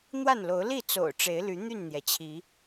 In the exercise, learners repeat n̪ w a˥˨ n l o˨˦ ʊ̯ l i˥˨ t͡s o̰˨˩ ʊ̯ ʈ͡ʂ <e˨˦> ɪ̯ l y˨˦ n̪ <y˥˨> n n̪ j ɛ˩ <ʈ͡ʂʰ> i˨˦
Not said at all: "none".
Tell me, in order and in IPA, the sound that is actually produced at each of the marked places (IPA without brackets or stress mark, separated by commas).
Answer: e˨˦, y˥˨, t͡ɕʰ